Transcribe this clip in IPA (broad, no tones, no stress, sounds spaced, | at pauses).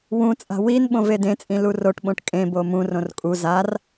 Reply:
w ũ t͡sʼ a̤ w i n ɓ õ v e d ẽ t͡sʼ ĩ l u r o ʈ ɓ õ ʈ kʼ ẽ b o m ũ r õ r kʼ u z a r